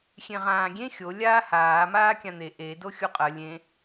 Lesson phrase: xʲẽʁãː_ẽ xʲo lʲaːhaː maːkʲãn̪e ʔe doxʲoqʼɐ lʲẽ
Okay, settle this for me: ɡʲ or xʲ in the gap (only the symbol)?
ɡʲ